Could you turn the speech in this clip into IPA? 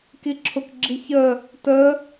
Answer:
kiǁʰʊk ɡ͡ǁiçəː | təː

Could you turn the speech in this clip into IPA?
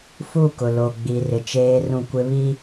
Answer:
fu˦˨kʊ˨lo˨ ɡ͡bi˨rɪ˨t͡ʃeː˦ rũ˦˨kʷɪ˦ βi˦

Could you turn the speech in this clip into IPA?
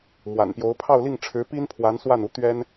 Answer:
mwa̰˨˩npjo˧˥ʊ̯ pʰɑ˥˧ʊ̯li˥˩ŋʈ͡ʂʰɻ̩˧˥pi˥n pʰwa˧˥nswa˥˩nu˧˥ t̪ɥɛ˥n

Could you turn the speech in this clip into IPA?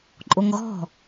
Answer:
ǃʼoŋɣɔ̤

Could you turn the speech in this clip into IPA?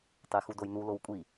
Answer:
tˤexudojnu lowkʷʼi

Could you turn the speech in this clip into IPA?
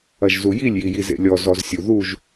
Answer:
ɐʒzujilʲ jijizḛlʲɔ zɔzsʲuðuʒ

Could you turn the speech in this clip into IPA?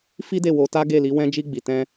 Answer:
fi˦ de˦˨wo˧ta˦ ɡe˦˨li˨˦ wɛ̃˦d͡ʒi˦ ɡ͡bi˧tɛ̃˦

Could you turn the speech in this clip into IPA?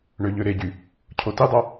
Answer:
ɳøʎøɾeɟy | cʰotidˤɑ

